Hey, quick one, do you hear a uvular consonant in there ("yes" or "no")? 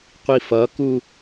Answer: yes